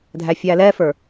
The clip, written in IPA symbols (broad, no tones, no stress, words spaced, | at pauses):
dʱæfʲælɛfə˞